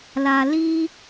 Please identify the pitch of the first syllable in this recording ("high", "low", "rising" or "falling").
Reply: low